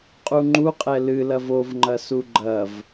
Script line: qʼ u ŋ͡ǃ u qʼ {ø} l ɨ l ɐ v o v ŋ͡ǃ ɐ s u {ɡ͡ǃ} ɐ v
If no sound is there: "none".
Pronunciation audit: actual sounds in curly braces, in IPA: ɛ, ɡ͡ǃ

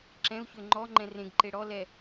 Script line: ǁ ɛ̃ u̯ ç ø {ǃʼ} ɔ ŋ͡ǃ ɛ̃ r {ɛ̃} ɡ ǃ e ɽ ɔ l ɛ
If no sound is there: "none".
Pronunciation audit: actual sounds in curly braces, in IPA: ŋ͡ǃ, ẽ

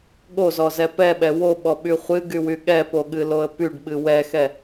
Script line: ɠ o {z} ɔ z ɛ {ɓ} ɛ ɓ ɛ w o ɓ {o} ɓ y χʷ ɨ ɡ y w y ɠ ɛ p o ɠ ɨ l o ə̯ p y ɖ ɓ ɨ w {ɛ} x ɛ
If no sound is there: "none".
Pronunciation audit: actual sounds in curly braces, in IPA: z, p, ɔ, ɛ

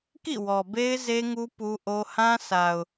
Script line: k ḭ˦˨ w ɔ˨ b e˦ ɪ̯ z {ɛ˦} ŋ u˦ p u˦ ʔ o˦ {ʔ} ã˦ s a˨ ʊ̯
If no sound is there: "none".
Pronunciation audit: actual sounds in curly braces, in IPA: e˦, h

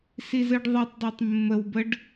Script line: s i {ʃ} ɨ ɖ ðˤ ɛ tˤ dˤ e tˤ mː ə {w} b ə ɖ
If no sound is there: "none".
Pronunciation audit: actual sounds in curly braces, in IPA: z, w

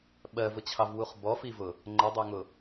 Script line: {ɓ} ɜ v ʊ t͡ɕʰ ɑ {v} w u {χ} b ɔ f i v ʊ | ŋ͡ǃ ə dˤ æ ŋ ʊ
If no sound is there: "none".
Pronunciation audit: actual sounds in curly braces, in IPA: ɓ, v, χ

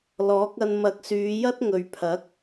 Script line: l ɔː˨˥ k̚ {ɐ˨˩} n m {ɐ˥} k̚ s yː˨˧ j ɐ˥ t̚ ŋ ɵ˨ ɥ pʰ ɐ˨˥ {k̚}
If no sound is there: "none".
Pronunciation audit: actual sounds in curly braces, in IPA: ɐ˧, ɐ˨˥, k̚

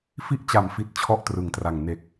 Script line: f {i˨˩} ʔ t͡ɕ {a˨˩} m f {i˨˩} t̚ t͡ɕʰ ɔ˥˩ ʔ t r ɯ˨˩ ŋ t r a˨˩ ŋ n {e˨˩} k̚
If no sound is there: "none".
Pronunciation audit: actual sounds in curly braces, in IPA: i˥˩, a˨˩, i˨˩, e˨˩

